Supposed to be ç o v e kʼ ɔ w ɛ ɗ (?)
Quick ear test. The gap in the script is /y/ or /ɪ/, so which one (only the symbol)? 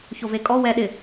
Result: ɪ